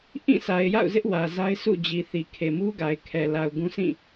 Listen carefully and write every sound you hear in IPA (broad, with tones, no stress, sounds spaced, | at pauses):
ʔ ĩ˦˨ s a˨ ɪ̯ j a̰˦˨ ʊ̯ z ɪ˦ ʔ w ä˨ z a˦ ɪ̯ sʰ ṵ˦˨ d͡ʑ i˨ θ i˨ kʰ e˨ m u˦ ɡ a˨ ɪ̯ kʰ ɛ˨ l a˨ ʊ̯ ɡ ũ˦ sʰ ĩ˦˨